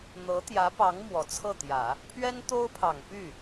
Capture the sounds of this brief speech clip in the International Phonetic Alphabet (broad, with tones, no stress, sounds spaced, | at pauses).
n̪ ɤ˧˥ t̪ j ä˧˥ p ɑ˧˥ ŋ m w ɔ˨˩ t͡sʰ ɤ˥˩ t̪ j ä˨˩˦ | pʰ ɥ ɛ˥ n t̪ o˥ ʊ̯ pʰ ɑ˨˩ ŋ p y˥˩